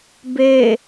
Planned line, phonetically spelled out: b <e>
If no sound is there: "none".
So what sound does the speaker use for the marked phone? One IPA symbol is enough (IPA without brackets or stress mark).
e